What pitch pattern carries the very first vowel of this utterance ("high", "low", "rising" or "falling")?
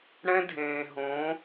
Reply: high